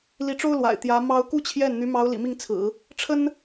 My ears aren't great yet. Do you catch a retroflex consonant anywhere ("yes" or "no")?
yes